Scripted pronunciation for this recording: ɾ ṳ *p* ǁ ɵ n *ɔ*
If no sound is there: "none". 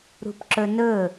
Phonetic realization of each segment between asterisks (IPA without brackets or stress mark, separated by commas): p, ɵ